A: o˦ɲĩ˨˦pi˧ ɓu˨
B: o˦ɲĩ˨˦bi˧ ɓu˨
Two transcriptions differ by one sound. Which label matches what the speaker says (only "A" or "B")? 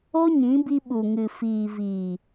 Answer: B